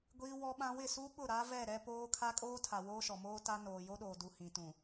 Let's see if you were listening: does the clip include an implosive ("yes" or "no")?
yes